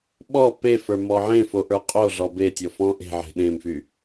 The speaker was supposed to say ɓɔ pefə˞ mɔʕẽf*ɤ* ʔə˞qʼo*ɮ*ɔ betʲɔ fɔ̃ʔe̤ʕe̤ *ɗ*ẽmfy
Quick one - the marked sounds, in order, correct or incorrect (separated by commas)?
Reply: incorrect, correct, correct